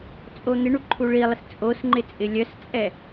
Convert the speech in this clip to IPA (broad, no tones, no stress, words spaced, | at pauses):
t͡sʼon̪ɪɳu ǃʰuɭilˠɪs t͡sʼos ŋ͡ǃɪt͡sʼɪlʲœst͡sʼɛ